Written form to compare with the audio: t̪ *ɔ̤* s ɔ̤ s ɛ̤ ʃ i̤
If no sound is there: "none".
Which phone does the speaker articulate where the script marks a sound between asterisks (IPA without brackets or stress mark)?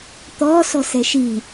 ɔ̤